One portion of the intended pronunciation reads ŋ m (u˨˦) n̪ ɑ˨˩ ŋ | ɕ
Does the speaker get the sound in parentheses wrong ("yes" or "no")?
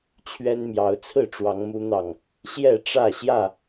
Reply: no